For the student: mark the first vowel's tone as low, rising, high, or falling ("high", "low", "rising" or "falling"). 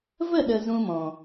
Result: falling